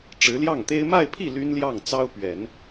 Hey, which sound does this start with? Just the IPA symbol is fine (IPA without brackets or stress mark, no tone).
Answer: ʈ͡ʂ